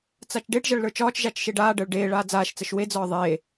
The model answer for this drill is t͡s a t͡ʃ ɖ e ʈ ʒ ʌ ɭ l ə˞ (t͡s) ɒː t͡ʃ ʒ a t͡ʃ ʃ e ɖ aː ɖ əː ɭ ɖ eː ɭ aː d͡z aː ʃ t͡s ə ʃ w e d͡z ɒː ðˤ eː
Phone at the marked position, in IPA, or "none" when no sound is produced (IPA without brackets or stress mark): t͡ʃ